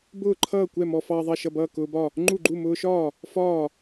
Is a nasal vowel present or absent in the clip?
absent